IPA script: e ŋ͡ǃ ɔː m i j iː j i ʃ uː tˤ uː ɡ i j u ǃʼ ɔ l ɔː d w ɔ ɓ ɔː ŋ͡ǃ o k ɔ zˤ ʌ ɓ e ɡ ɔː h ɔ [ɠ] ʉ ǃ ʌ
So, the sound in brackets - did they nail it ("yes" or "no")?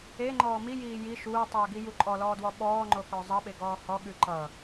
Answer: yes